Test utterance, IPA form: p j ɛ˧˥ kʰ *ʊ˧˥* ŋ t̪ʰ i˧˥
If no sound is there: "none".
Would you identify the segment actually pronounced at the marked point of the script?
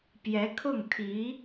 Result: ʊ˥˩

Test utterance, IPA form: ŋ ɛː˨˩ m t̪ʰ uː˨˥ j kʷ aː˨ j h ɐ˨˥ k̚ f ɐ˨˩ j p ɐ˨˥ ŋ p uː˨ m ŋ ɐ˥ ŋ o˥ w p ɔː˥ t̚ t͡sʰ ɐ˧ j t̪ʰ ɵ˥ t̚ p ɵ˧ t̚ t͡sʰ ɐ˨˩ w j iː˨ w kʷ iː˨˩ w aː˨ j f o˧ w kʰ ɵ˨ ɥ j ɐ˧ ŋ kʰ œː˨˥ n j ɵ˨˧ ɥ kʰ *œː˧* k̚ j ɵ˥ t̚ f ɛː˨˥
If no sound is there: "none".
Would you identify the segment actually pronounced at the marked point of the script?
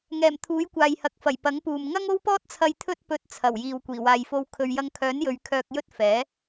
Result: œː˧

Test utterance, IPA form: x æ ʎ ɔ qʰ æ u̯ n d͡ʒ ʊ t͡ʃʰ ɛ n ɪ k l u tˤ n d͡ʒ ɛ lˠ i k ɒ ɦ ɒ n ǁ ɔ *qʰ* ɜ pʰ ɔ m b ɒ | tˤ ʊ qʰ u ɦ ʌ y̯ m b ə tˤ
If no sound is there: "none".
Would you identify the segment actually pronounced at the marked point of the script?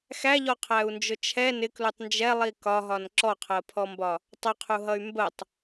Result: qʰ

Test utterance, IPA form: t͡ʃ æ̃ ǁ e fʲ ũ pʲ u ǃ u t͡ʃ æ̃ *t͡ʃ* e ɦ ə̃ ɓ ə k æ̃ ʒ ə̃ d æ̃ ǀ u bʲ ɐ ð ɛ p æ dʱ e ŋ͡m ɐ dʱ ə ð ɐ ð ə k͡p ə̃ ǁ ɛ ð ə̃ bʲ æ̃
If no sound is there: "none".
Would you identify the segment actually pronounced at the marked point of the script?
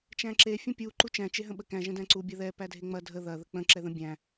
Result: t͡ʃ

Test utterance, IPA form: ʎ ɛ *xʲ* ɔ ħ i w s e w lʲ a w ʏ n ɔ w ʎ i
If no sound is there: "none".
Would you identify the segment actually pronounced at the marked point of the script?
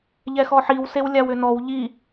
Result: x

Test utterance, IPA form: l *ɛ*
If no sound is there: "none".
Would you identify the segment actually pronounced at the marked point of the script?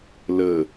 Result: ə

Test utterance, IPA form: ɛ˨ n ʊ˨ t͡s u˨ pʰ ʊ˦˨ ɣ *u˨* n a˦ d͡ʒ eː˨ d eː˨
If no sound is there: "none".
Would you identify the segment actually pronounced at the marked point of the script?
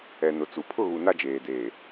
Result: u˨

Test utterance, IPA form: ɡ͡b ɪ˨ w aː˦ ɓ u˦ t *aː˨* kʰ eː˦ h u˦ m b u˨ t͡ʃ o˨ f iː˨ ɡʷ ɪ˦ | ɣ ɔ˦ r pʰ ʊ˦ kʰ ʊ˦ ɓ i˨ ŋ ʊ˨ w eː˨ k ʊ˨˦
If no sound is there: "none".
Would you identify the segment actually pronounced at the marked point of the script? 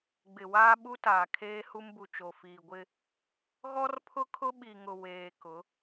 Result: aː˨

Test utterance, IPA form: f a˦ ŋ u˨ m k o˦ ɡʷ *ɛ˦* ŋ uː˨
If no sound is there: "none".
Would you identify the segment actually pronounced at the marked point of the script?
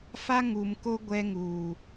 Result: ɛ˦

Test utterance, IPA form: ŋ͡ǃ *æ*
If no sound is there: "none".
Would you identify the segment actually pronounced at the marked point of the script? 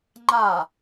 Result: a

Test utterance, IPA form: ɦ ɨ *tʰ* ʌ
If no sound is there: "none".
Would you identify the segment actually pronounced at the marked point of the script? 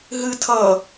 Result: tʰ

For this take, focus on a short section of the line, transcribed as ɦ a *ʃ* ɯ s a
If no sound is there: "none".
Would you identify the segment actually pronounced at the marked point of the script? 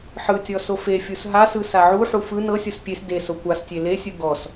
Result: s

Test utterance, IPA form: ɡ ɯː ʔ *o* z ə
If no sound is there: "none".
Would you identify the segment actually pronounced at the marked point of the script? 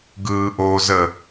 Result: o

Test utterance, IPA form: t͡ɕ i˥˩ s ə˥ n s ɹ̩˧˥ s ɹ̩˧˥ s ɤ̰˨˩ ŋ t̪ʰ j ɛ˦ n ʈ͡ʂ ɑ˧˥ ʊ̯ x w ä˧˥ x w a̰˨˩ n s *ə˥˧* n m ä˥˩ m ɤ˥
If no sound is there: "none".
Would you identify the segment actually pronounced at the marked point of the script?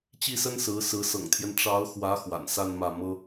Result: a˥˧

